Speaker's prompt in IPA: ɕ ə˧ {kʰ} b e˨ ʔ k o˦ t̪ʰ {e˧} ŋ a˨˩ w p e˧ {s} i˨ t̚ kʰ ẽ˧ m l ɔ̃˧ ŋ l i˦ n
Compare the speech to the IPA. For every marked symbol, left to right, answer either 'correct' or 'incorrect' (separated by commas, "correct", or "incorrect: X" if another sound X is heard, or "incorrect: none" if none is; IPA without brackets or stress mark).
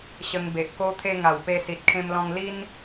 incorrect: ŋ, correct, correct